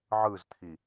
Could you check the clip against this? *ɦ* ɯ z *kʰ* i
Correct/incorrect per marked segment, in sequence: incorrect, incorrect

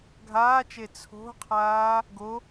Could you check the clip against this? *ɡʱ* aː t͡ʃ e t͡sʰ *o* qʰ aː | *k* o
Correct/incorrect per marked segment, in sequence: correct, incorrect, incorrect

